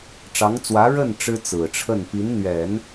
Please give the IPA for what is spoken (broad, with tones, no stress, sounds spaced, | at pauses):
ʈ͡ʂ ɑ˧˥ ŋ t͡s w ä˧˥ ɻ ə˥˩ n ʈ͡ʂ ɻ̩˥ t͡s ɹ̩˨˩ ʈ͡ʂʰ ə˥˩ n p i˧˥ n n̪ ɥ ɛ˨˩˦ n